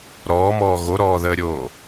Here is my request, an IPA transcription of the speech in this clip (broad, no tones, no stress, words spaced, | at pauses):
ɾɔːmɔː ɣoɾɔːðəːɾʲoː